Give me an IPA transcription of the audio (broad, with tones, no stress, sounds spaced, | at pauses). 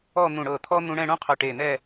ɔ˥˧ n̪ ũ˧˩ ɽ ɤ˧˩ t̪ʰ ɔ˥ n̪ ũ˧ ɽ ɛ̃˥˧ ɽ ũ˥ qʰ œ˧˩ ʈ e˧˩ n̪ ɛ˥˧